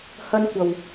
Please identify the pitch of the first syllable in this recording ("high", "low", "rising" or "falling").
high